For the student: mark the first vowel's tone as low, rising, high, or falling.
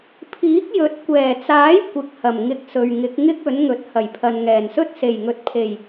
rising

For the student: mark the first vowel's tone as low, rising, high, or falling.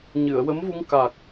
low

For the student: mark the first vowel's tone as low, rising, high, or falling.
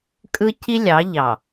high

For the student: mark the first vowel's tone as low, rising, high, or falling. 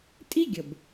high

